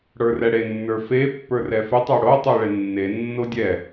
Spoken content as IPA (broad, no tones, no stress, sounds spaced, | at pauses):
ɽ ə˞ r ɛ ɽ e nː ə˞ f e pː ə˞ r ɛ f e tˤ ə˞ ɽ o tˤ o ɭ e nː e nː o dʲ ɛ